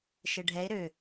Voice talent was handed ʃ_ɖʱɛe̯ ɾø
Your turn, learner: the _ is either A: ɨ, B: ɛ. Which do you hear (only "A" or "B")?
B